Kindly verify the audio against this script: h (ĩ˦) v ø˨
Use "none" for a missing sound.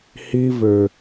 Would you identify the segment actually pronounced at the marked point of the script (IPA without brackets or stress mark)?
i˦